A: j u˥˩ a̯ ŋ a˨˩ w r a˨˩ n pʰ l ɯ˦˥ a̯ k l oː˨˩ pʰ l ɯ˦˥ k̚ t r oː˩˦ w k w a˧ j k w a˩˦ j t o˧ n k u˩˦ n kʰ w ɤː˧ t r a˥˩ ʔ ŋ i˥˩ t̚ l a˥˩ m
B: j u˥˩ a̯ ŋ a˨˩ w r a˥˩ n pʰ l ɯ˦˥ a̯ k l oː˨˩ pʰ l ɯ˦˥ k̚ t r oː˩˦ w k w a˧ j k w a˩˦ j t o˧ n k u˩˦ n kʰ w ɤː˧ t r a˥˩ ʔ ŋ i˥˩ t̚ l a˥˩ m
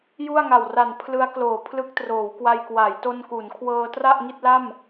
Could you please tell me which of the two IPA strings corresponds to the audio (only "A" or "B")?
A